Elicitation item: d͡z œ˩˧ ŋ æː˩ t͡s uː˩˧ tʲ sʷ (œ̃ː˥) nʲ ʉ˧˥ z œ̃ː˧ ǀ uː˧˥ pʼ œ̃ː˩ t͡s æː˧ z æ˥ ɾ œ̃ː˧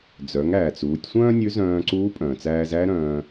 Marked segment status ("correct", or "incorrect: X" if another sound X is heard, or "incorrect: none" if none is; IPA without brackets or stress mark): correct